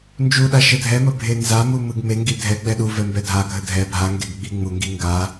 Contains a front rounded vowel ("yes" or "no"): no